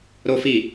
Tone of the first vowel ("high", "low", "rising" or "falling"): high